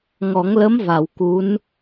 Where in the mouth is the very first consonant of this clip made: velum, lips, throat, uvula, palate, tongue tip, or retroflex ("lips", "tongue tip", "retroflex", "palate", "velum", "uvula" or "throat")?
velum